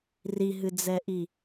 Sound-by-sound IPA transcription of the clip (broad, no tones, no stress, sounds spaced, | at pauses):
r i ɦ ɨ d͡z ɛ ʔ i